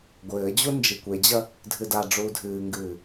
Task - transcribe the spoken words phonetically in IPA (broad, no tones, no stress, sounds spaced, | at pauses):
ɡʷ ɘː d͡ʑ u n d͡ʒ i kʷ e d͡ʑ ɐ | dʱ ɨ d a ɖ͡ʐ uː dʱ ɨː ŋ ɡ ɨː